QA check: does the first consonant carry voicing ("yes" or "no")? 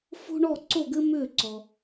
no